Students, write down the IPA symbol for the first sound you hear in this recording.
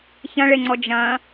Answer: ç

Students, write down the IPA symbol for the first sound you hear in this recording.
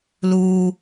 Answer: l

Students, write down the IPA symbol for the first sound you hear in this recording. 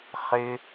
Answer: χ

